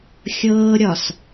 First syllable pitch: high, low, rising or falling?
high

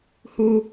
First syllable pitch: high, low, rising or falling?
high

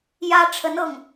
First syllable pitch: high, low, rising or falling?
high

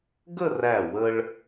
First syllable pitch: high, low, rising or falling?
falling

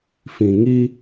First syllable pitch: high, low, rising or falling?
low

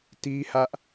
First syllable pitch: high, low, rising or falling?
high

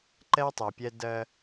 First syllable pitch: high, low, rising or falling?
high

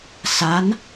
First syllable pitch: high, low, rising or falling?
rising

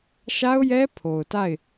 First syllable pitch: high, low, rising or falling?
high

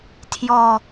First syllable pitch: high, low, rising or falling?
falling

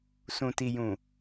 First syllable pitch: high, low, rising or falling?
low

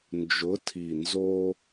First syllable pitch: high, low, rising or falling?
rising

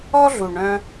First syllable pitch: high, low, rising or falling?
high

